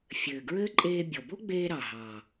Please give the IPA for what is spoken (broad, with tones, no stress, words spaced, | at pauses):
fʲɘː˨˩ɡɹɘː˥ ǃʼeː˧bʲɔ˨˩bo˥ɡ͡beː˧ ɾɑ˨˩ɦɑ˨˩